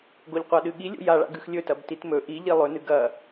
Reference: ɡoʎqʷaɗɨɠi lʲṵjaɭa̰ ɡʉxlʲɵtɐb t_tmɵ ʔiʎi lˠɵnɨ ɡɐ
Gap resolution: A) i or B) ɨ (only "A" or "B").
A